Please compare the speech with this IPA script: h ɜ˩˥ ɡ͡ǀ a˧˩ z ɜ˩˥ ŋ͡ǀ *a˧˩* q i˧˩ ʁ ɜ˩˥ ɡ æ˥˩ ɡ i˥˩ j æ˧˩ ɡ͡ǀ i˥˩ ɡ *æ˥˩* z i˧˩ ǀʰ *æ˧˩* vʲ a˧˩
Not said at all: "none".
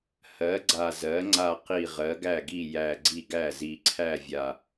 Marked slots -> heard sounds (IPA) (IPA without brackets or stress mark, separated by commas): a˧˩, æ˥˩, æ˥˧